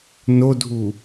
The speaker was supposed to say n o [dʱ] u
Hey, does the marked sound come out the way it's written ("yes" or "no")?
yes